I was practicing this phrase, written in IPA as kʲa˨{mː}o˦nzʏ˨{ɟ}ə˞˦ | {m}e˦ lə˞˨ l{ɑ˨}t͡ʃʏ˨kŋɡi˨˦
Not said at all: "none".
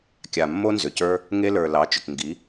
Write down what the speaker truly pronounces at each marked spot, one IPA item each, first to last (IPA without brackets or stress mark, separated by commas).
mː, c, ŋ, ɑ˨˦